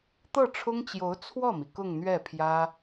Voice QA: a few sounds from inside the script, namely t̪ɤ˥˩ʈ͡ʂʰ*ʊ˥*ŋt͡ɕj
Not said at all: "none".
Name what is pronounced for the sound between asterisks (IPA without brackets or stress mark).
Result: ʊ˥